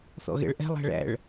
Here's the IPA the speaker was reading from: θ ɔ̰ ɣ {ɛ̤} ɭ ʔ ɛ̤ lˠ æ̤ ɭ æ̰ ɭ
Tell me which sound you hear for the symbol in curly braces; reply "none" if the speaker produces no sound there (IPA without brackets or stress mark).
ɛ̰